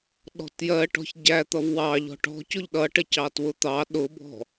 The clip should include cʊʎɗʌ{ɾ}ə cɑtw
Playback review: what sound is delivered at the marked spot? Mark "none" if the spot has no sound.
ʈ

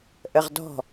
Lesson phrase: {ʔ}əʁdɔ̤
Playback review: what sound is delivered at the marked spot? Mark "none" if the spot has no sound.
ʔ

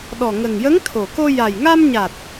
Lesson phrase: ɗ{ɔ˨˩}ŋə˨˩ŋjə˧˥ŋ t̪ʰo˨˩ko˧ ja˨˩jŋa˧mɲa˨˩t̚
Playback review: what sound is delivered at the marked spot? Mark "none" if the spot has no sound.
ɔ˨˩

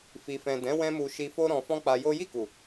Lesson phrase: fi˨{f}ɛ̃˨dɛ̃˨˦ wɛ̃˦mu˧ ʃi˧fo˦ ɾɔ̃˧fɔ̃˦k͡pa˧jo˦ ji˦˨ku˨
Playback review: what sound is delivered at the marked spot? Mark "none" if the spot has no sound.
f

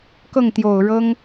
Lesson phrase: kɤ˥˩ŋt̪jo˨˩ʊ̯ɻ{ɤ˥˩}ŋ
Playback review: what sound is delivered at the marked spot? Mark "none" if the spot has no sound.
ɤ˥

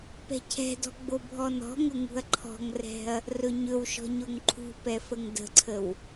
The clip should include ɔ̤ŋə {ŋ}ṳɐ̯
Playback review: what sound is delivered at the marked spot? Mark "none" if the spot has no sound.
ŋ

